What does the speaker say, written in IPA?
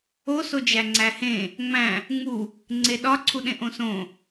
o s o d͡ʒ æ ŋ͡ǀ æ h ẽ | ŋ͡m æ̃ | ŋ͡m u | ŋ͡ǀ e ɗ ɒ ǀʰ u ɗ ẽ ʔ õ s õ

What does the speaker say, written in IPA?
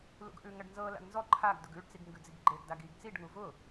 l ṵ ɡ ʔ ʉ ŋ ɐ ɖ n z ɤ l a̰ ɡ n z ɔ ǃʰ a ɡ d ʊ ɡ ʉ ɖ t͡s i ɡ ŋ ɡ ʉ d͡z i ɡ ɡ͡ǃ e ɡ d a ɡ i ɡ t͡s i ɖ ŋ u v ʊ

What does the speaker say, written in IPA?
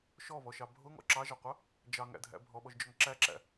ʃ ɔ β ɔ ʃ ɑ bʱ ʊ ŋ ɔ̰ ǁ ɑ ʒ ɑ qʷ ɑ | d͡ʒ ɑ ŋ æ̰ dʱ æ̰ bʱ ɔ ɓ ɔ ʒ d͡ʒ ɔ ŋ ǁ æ ǁ æ̰

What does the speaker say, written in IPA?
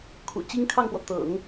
kʰ ṵ˨˩ t͡ɕ i˥ ŋ kʰ ɑ˥˩ ŋ p w ɔ˩ t̪ ɤ̰˨˩˦ ŋ

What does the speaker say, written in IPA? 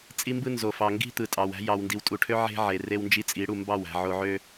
t͡sʼ i˦ m b ɯ˦ n z o˨ f ɑ˨ ŋ ɡ i̤˦ t̪ ɯ˨ tʼ ɑ˨ w æ̤˦ j ɑ˨ w n d i˨ w tʼ u˨ ʈʰ ø˦ ʕ e̤˦ ʕ e˨ r e˦ w n d͡ʒ i˦ t͡sʼ i˨˦ ɽ u˨ m b ɑ˦˨ w æ̤˨ ʕ o˨ ʕ ø˦

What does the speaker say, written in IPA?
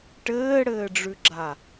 ʈ ɘː ɽ ɘː ɖ͡ʐ ʉ ɡ͡ǁ a

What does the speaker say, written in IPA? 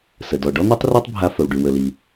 s ə˩ d ɔ˩ ɖ ɔ˥ n̪ i˥ tˤ r ø˥ tˤ bʱ a˧ f ə˩ w ɖ y˩ w ə˩ l i˩

